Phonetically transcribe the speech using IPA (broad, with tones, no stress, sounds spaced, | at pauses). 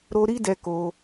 ɾ o˧ ɾ i˦ d ɛ˧ k o˧